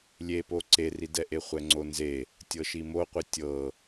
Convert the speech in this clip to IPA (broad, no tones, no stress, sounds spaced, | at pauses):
lʲ e p o ǀ e r i d ɛ ʔ e χʷ ɛ ŋ͡ǀ o n z e | tʲ ɤ ʃ i m o qʷ i tʲ ɤ